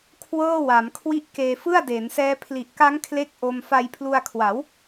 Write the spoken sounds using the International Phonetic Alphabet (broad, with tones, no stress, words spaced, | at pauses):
kʰwɤː˥˩wa˩˦m kʰwi˦˥ʔ keː˧fɯ˥˩a̯ deː˩˦nsɛː˦˥ pʰli˨˩ʔka˦˥ŋ kʰle˥˩k̚ ʔo˧m fa˧jpʰlu˧a̯kʰwa˩˦w